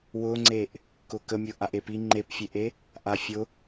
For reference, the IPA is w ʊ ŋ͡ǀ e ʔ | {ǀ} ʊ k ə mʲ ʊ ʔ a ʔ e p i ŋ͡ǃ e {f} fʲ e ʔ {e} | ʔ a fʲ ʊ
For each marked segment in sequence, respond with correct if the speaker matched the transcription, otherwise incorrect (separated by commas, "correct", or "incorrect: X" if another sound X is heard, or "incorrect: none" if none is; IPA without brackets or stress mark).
incorrect: k, incorrect: p, correct